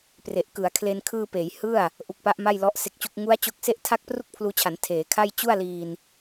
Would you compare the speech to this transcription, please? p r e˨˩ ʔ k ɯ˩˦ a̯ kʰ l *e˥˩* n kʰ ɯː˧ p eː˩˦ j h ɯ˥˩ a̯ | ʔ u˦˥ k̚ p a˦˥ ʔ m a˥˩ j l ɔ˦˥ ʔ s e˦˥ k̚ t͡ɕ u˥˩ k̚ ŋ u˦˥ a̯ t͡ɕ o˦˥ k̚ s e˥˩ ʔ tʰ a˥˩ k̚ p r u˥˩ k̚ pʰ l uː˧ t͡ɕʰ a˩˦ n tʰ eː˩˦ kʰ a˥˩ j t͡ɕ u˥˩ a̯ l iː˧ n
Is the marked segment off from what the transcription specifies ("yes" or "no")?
yes